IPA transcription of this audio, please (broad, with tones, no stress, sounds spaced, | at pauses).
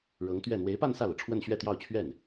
ɻ ɤ˧˥ ŋ t̪ ɥ ɛ˥˩ n̪ w e˧˥ ɪ̯ p a˥˧ n s ä˥˩ l ɤ˩ ʈ͡ʂʰ w ə˥˧ n ɕ ɥ ɛ˥˧ t̪ j ɑ˥˧ ʊ̯ t͡ɕʰ ɥ ɛ˥˩ n